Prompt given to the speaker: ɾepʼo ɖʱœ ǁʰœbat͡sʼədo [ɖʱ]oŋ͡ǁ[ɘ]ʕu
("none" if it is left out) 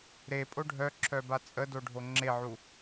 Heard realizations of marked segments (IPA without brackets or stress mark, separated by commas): ɖʱ, e